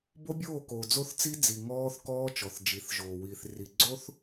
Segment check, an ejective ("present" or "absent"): absent